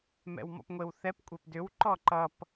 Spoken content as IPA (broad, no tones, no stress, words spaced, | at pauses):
mɛ̰wmɔ̰pŋʷewθɛp kʷʼepdʏw ǃɔǃʌp